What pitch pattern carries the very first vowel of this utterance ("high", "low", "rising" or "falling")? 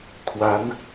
rising